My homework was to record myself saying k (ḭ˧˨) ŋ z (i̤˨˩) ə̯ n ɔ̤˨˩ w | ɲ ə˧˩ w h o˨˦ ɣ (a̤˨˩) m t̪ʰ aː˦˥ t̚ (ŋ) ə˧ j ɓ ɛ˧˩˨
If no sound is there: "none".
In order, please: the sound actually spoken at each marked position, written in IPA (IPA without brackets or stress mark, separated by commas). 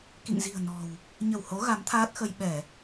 ḭ˧˨, i̤˨˩, a˨˦, x